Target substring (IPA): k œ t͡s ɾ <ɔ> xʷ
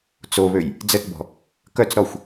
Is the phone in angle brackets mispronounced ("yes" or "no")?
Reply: no